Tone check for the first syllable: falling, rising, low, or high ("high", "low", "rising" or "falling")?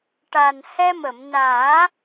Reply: low